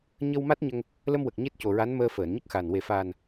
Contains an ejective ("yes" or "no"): no